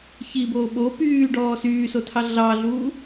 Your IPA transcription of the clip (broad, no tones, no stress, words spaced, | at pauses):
çiboː ɓo pyːɖɔː syːsotʰɑ ɮɑɮuː